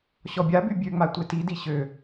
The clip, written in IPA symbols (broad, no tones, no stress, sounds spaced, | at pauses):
ɕ ɔ bʲ a b y bʲ ø ŋ͡m a tʷ e t i d i ɕ ø